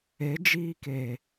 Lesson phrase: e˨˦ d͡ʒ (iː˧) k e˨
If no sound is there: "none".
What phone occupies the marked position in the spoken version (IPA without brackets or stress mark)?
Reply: iː˧